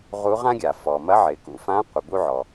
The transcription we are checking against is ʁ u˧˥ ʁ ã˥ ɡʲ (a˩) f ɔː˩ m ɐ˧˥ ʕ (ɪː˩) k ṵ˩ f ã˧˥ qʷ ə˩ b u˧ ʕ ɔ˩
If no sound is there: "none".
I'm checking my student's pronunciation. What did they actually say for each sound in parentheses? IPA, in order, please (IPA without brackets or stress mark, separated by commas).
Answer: a˩, ɪː˩˧